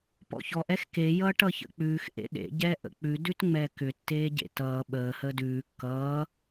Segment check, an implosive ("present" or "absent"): present